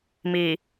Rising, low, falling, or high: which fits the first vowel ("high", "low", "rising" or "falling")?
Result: low